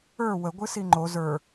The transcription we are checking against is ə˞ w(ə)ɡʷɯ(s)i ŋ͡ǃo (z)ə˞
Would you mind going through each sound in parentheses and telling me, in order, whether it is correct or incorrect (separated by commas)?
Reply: correct, correct, correct